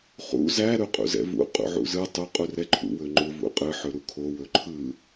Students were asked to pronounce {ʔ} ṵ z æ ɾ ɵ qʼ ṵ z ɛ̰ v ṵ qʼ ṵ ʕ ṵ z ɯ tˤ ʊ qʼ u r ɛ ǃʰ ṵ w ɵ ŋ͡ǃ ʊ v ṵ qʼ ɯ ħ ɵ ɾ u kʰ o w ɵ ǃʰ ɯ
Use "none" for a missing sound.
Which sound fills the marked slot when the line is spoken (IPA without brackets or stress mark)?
χ